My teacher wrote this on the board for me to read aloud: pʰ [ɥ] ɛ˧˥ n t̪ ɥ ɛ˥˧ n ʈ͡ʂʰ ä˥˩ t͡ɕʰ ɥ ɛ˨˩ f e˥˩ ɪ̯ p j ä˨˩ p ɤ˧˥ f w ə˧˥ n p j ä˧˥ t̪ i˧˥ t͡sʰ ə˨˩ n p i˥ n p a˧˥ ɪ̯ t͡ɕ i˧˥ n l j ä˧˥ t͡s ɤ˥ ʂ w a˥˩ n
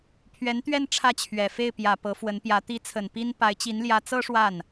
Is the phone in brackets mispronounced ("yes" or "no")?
no